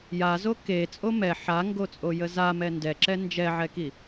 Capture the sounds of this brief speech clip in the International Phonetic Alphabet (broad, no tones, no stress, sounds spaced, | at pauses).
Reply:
j a z o k e t͡sʼ o m ɛ ħ a ŋ ɡ o t͡sʼ o j ə z a m ɛ n d ɛ ǁ ɛ n d͡ʒ ɛ ʕ ɛ k i